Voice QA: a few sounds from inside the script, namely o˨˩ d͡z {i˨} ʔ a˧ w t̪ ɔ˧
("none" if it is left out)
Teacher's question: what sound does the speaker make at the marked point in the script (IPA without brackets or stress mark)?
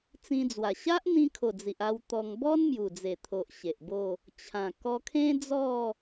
i˨